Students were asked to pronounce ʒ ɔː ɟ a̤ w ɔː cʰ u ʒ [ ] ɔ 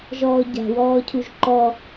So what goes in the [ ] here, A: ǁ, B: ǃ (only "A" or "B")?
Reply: B